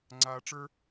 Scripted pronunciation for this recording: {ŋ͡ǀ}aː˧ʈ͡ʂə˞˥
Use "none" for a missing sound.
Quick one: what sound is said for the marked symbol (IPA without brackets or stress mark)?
ŋ͡ǀ